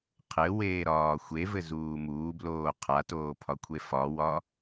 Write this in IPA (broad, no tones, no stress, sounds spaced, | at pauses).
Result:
qʰ ɘ w eː ɾ ɒː xʷ e v ɘ z uː m uː b l oː qʰ a t oː pʰ ɒ kʷʰ e f ɒ w ɒ